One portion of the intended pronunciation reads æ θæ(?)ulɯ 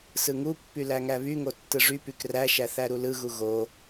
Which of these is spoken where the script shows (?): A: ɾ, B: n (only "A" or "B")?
A